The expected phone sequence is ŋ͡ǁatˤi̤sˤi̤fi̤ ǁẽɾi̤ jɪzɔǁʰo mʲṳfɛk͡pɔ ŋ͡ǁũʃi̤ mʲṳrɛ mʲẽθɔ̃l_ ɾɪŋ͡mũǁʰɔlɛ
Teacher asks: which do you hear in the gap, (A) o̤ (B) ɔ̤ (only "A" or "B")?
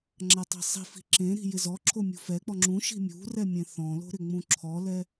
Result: A